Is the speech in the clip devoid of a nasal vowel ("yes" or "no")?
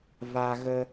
yes